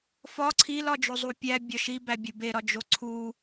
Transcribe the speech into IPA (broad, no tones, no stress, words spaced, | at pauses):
fɒ ǀʰilɒ d͡ʒozˤupʲæ bʲɒʃi bæbʲubeɾɒ d͡ʒoǀʰu